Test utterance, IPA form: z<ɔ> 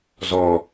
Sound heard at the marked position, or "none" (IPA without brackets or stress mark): ɔ